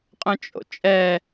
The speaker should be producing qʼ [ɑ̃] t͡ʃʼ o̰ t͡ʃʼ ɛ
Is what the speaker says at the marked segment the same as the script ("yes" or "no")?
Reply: no